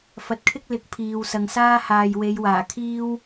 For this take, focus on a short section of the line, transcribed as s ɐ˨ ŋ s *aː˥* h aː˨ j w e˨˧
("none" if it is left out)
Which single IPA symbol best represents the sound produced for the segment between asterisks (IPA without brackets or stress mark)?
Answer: aː˥